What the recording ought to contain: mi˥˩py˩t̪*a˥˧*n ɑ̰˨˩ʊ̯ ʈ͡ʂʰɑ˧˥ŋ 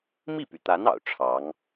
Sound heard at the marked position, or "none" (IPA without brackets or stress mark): a˧˥